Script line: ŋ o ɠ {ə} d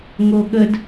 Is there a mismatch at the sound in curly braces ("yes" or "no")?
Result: no